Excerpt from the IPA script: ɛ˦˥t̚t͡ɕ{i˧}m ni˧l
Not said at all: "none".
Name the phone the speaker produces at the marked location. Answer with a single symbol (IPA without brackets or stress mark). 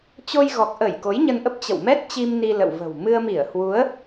i˧